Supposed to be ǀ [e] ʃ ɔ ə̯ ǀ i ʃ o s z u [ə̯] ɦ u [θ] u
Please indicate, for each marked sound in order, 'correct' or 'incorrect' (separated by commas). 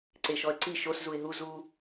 correct, incorrect, incorrect